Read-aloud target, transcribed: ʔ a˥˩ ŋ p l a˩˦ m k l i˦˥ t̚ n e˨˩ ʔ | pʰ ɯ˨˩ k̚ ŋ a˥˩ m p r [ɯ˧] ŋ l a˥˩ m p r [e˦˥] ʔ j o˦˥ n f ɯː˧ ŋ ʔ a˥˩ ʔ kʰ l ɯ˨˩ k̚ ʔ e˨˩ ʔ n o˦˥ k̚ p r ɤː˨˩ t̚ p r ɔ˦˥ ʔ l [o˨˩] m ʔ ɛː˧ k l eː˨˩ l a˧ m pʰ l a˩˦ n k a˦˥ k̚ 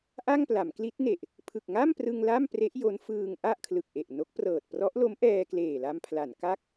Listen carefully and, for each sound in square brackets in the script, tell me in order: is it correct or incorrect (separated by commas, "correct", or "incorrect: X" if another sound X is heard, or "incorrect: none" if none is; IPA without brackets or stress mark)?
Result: correct, correct, incorrect: o˦˥